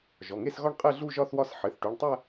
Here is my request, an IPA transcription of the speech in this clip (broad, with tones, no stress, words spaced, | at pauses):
ʒɔ˩˧˩ŋe˥˧sɣɔ˥˧ɳ qʼɘ˥˧ ɮu˥˧ʒɒ˥˧θwɒ˥˧s ħɘ˩˧˩θʈu˩˧˩ɳtˤæ˥˧